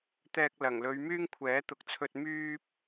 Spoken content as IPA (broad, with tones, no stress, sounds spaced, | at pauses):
t̪ ɛː˧ k̚ l ɐ˨˩ ŋ l ɵ˨˧ ɥ m yː˥ ŋ kʷʰ ɛː˨˥ t̪ ʊ˨˥ k̚ t͡sʰ ɵ˧ t̚ m yː˥ p̚